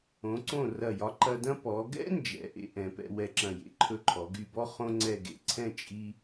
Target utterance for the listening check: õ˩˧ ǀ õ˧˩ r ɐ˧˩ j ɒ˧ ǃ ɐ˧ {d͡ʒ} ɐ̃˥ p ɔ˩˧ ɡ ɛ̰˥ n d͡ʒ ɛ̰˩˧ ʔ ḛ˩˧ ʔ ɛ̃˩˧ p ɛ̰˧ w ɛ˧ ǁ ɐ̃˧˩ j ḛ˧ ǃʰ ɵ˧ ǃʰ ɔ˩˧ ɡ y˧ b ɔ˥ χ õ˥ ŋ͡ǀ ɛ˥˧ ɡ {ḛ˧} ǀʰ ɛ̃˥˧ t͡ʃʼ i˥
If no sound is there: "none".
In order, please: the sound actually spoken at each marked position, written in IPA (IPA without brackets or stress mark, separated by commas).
d, ḛ˧